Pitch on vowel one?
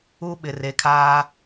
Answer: high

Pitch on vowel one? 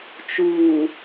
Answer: low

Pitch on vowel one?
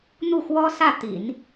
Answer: falling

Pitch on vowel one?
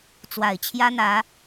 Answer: low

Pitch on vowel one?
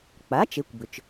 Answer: rising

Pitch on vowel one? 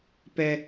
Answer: low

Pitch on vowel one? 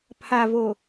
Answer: low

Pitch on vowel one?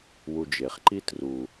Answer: low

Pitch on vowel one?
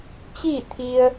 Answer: falling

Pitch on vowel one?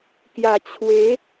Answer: low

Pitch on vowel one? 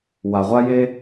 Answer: low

